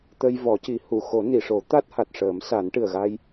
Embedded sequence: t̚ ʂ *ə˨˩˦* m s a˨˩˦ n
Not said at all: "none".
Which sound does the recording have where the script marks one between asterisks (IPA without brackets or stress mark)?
əː˨˩˦